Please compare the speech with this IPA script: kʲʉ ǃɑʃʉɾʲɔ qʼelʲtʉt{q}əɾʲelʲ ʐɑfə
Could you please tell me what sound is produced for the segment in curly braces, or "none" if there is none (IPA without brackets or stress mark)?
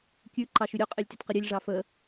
q